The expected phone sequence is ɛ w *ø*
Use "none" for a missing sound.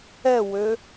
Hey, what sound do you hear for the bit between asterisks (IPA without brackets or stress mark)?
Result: ø